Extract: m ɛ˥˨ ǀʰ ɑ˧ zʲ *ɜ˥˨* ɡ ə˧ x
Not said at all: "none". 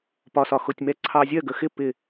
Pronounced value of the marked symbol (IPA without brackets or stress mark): ɜ˥˨